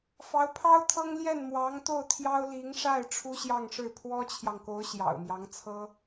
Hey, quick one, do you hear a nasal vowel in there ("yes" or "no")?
no